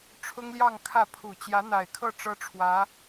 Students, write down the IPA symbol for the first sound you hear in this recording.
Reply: ʈ͡ʂʰ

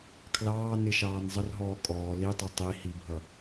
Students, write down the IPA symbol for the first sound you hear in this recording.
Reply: kʰ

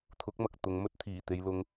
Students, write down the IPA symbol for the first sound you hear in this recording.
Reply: t̪ʰ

